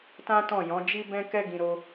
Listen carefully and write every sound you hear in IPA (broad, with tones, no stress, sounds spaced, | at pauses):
t ã˦ t ɔ̃˦˨ j ɔ̃˨˦ d͡ʒ i˦ b ɛ̃˦ k ɛ˦ ɡ ĩ˧ ɾ o˦